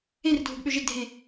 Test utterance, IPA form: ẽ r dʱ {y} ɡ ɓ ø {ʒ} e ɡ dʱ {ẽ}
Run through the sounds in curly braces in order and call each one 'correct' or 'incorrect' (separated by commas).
incorrect, correct, correct